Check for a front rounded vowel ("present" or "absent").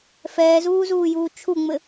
absent